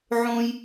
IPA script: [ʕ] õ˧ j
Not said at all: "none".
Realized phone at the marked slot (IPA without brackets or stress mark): ʕ